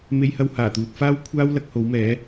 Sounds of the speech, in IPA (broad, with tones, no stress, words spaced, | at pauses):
me˥jhɐ˥w haː˨˩t̪uː˨t̚faː˥w kʷʰaː˥wlɐ˨˥k̚ ho˨˥wmɛː˨˥